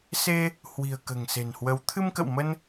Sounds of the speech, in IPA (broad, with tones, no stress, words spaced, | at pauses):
se˧ | hwi̤˨˩ə̯ kə̤ː˨˩ŋse̤˨˩nhwə˨˦w t̪ʰɨ˧mkə̰˧˨wmə˧n